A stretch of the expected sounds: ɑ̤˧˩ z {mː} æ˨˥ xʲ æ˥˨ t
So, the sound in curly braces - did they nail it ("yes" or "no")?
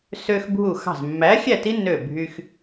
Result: yes